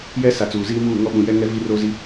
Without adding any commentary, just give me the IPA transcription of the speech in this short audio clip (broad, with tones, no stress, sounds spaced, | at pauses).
j ɛ˦ s a˨ t͡s uː˨ z iː˦ m uː˦˨ ŋ ɔ˦ ɓ ũ˨ j ɛ˦ ŋ ɛ˦ v i˦ r oː˦ z i˦